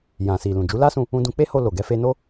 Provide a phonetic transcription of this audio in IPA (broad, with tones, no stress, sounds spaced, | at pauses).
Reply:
j ã˨ s i˨ l ũ˨ d͡ʒ u˨˦ l a˦ s ũ˧ | ũ˧ d ũ˧ k͡p e˦ h o˧ l o˨ ɡ ɛ˧ f e˧ n o˦